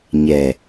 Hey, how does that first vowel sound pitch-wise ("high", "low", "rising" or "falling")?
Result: low